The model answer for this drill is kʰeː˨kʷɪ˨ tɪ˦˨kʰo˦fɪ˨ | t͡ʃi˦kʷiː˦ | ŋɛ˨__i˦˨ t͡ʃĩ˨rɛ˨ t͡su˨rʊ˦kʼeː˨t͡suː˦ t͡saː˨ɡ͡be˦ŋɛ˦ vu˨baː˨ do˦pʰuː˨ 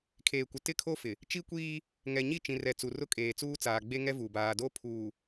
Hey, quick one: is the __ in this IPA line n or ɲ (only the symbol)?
ɲ